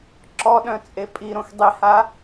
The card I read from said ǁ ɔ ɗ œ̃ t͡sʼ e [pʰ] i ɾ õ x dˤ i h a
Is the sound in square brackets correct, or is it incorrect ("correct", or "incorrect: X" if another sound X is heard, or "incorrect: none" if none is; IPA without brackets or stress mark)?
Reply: incorrect: pʼ